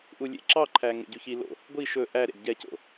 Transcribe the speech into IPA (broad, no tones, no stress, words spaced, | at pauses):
ʔulʲḛǁɑǃʰæ ŋḛɟʉçilo̰ | ɡʷi ʃɵ ʔæɾḛd ɟɛco̰